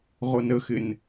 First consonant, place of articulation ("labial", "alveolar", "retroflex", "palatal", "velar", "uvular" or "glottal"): uvular